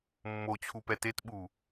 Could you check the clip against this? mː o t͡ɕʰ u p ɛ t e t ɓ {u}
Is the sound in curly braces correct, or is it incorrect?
correct